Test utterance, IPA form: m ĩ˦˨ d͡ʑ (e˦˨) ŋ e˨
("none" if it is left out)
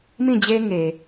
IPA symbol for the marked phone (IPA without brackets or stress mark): e˦